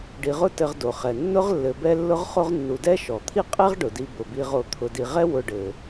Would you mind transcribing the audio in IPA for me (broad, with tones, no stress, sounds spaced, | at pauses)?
ɖ i˨ ʁ ʊ˦ t ɘ˨ ʁ d o˩ χ ɛ˩ nː ʊ˦ ʁ lː ɘ˨ b ɛ˦ lː ʊ˦ ʁ χ o˦ ʁ nː u˨ d ɛ˥ ʃ ɔ˩ t̪ʰ i˦ qʼ ɛ˥ ʁ ɖ ʊ˩ d i˨ b ʊ˩ b i˨ ʁ o˨ t̪ʰ ʊ˨ d i˨ ʁ ɛ˦ w ʊ˨ ɖ ɘ˩